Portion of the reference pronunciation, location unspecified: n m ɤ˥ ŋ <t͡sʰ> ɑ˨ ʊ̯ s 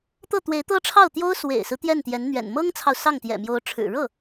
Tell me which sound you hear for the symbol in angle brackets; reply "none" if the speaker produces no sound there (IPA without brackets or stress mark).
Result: t͡sʰ